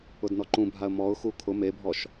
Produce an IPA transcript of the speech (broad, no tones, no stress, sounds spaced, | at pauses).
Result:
ʊ d n ɔ ǃ ũ bʱ a ə̯ m ɔ ʊ̯ x u kʰ ʊ m e bʱ ɔ ʃ